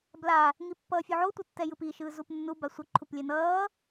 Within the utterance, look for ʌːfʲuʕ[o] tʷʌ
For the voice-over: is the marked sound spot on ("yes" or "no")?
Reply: yes